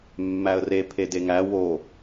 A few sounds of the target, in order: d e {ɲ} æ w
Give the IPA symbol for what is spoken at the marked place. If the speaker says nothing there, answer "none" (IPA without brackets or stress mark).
ŋ